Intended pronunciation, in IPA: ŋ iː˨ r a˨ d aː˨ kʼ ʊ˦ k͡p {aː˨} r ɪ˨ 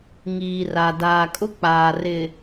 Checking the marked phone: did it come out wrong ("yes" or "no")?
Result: no